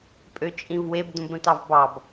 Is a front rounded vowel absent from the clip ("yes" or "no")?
no